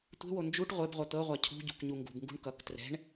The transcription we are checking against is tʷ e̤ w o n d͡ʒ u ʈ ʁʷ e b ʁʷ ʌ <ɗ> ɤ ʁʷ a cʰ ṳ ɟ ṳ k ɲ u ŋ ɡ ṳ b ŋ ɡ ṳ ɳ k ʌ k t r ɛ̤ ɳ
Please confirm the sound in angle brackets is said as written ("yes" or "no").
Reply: no